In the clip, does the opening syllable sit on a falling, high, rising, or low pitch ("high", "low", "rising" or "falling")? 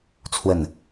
falling